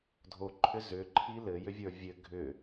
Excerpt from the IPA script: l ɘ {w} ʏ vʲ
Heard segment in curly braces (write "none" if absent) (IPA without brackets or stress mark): j